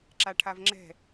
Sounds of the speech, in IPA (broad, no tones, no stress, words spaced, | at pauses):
ǁaʈʰavŋ͡ǁɛ̤